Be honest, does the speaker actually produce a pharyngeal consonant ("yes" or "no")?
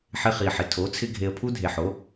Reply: yes